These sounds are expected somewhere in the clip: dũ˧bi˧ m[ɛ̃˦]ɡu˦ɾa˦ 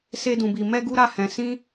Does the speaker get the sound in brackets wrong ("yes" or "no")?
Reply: yes